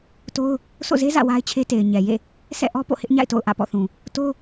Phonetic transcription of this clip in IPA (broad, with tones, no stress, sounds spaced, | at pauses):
t o˦ ʊ̯ | sʰ o̰˦˨ z e˦ z ä̰˦˨ w a˦ ɪ̯ t͡ɕʰ e˦ t e˨ ɪ̯ ɲ ɛ˨ j ḛ˦˨ | sʰ ɛ̰˦˨ ʔ ɔ˦ p o̰˦˨ h ɪ˦ ʔ ɲ a̰˦˨ ɪ̯ t o̰˦˨ ʊ̯ ʔ ä̰˦˨ p ɔ̰˦˨ θ ũ˨ | t o˦